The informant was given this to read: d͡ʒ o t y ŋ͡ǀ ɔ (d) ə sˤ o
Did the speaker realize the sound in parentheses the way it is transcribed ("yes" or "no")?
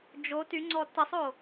no